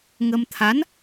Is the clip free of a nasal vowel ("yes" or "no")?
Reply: yes